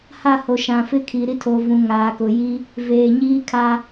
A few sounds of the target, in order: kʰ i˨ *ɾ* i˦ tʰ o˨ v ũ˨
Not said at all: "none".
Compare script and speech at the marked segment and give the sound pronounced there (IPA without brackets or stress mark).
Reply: ɾ